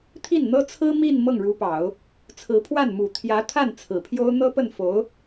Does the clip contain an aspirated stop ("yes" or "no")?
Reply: yes